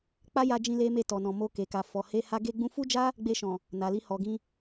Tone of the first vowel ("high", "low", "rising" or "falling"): high